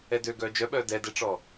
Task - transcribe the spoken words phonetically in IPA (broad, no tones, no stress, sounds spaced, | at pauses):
ɛ d ø ɡ œː d͡ʒ œ ɓ œː d ɛ d e ʈ͡ʂ ɔ